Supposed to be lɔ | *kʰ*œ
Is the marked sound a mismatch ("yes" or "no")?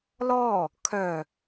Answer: no